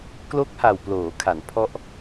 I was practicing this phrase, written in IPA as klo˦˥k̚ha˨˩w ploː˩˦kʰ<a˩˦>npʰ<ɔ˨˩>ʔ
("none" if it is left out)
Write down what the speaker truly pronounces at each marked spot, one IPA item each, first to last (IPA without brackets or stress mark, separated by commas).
a˩˦, ɔ˦˥